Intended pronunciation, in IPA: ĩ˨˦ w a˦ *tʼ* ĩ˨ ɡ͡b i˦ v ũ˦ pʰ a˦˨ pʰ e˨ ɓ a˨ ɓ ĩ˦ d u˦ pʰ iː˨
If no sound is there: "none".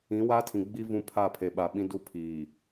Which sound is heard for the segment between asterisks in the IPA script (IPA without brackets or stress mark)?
tʰ